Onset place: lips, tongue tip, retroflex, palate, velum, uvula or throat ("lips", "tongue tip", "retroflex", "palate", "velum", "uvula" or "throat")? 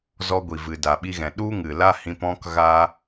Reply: tongue tip